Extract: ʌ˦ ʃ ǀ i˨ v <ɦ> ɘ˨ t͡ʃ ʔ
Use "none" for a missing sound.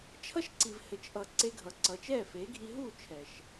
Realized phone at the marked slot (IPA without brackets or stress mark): h